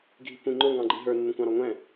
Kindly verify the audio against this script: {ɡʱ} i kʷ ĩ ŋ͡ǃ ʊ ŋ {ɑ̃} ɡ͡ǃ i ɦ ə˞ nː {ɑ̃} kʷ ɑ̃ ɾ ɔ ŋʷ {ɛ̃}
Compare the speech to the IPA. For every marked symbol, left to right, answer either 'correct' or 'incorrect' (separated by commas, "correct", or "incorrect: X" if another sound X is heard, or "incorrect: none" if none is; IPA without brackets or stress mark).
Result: correct, correct, incorrect: ə̃, correct